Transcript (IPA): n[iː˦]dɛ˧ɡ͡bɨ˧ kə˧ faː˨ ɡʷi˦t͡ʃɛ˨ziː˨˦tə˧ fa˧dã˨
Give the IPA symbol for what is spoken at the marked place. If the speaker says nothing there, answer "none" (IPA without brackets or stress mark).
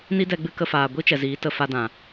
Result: i˦